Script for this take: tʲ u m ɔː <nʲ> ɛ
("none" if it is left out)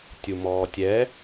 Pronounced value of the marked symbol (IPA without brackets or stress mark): tʲ